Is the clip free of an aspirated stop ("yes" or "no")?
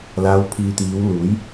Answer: no